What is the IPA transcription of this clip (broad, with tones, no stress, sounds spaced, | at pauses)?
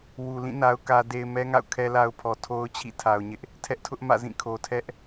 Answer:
w u˨ l ĩ˦˨ n a˦ ʊ̯ k ä˦ d e˦ ɪ̯ m ɛ˦ ŋ a̰˦˨ ʊ̯ kʰ ɛ˦ l a˦ ʊ̯ pʰ ɔ˨ tʰ o˦ ʊ̯ t͡ɕʰ ḭ˦˨ tʰ a˨ ʊ̯ ɲ ɪ˦ ʔ | tʰ ɛ˦ ʔ tʰ ʊ˦ ʔ m ä̰˦˨ z ĩ˦˨ kʰ o˨ tʰ ɛ˦ ʔ